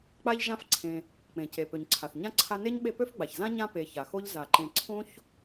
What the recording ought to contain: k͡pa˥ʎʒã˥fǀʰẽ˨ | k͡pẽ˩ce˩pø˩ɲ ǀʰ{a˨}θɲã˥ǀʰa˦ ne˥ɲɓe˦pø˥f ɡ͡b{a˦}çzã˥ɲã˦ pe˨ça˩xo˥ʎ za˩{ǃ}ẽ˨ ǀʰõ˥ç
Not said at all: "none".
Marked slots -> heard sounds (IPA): a˩, a˩, ǃ

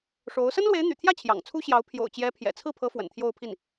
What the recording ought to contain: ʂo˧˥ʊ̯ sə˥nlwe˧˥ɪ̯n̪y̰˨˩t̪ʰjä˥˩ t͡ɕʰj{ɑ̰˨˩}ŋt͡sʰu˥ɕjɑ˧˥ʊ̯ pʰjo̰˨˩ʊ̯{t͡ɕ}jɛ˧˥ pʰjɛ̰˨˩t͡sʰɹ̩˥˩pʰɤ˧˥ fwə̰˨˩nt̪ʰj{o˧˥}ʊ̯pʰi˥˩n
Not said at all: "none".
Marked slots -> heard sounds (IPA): ɑ̰˨˩, t͡ɕ, o˥˧

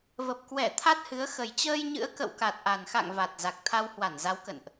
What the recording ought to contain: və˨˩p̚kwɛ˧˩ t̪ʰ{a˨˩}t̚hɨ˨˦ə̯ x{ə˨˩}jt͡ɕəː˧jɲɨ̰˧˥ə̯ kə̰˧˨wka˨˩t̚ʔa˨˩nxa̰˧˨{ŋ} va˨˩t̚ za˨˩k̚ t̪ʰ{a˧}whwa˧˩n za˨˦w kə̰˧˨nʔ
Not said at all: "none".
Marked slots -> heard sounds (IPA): a˦˥, ə˨˩, ŋ, a˧

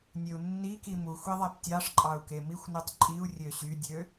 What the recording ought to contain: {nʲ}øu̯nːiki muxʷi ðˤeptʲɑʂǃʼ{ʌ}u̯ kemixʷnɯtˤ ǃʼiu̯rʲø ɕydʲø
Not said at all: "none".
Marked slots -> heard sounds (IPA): nʲ, ɑ

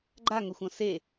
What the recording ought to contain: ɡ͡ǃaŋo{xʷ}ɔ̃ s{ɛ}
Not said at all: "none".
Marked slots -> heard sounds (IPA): xʷ, e

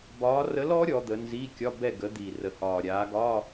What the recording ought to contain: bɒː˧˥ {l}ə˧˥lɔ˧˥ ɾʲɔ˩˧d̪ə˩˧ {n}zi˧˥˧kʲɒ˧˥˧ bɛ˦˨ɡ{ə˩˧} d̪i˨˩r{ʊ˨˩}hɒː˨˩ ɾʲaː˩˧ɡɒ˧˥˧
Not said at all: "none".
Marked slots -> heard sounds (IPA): r, n, ə˩˧, ə˨˩

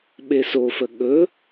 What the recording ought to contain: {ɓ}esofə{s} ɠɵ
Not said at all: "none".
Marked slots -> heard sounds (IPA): ɓ, none

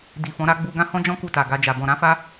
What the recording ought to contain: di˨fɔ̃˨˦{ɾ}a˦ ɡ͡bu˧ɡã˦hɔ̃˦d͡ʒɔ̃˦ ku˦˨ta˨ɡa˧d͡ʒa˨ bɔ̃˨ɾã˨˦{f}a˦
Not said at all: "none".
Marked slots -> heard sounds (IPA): ɾ, f

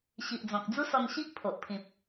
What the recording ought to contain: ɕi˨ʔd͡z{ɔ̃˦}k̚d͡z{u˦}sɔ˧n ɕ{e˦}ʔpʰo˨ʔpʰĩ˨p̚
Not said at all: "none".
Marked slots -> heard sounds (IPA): ɔ̃˨, u˦, i˦

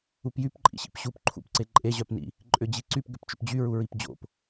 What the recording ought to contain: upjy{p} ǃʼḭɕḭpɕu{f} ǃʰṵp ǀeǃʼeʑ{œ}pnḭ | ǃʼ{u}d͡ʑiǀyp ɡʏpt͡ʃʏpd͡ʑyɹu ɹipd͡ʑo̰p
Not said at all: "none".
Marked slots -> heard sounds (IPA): p, p, œ, ʏ

